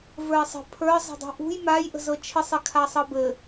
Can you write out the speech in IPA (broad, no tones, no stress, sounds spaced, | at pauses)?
v ə˞ ɪ̯ sˤ ə̤ pʰ ə˞ zˤ ə̤ dˤ ṳ ʔ ṳ j m a j ʔ ə̤ z ɤ t͡ʃʰ ɪ sˤ ɪ kʰ a sˤ ɤ b ɘ